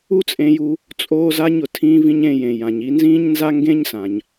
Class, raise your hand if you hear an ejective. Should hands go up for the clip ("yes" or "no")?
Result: yes